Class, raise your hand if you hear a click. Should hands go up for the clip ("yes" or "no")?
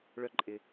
yes